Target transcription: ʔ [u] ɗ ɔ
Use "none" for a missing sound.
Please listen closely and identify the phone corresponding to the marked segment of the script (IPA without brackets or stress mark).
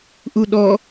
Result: u